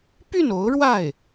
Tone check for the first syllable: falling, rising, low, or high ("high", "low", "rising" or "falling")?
falling